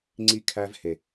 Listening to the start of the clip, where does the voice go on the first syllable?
high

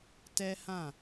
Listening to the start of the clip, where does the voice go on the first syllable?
high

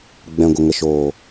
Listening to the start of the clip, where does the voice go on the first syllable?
low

